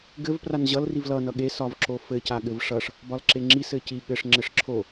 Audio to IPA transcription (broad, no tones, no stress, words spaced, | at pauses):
ɡɘv pranʑʌl rivlʌ nʌɠe sɒvǁofɘ caɠɘvʂʌʂ | bɒlǁeŋ͡ǁi sɘci ɠɘʂ ŋ͡ǁɘʂǁʰo